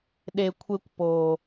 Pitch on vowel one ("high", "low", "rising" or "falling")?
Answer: low